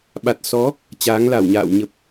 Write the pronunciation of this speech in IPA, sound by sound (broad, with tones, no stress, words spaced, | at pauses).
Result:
ɓa˨˩t̚sɔ˨˦ | t͡ɕaː˨˦ŋla˧˩wɲa̰ː˧˨w ɲə˨˩p̚